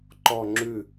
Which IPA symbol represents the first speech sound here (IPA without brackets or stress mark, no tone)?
ǃ